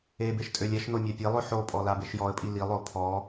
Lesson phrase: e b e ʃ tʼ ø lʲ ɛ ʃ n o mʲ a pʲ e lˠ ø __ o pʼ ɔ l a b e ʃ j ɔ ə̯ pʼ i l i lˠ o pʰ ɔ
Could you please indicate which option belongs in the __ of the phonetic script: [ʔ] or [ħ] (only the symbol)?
ħ